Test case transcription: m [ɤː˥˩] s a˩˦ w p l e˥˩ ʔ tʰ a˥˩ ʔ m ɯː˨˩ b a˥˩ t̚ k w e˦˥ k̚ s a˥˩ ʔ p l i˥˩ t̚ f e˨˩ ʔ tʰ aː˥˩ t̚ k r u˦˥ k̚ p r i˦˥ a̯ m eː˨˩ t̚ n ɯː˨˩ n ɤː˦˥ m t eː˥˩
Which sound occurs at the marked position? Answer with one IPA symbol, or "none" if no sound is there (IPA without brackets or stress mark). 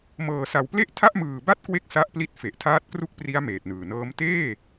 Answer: ɤː˨˩